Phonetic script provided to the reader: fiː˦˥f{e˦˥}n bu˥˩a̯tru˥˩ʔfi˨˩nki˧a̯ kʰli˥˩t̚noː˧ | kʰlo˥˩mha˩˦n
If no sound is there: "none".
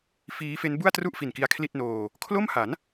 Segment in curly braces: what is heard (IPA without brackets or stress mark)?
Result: e˦˥